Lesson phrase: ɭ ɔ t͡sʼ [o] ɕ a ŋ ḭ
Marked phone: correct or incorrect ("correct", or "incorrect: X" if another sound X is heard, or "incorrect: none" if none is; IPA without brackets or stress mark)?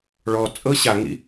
incorrect: ɤ